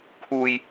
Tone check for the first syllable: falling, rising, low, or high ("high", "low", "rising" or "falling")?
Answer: low